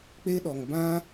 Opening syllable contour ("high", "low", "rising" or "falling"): high